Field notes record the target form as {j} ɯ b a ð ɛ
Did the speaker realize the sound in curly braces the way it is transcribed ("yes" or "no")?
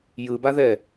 yes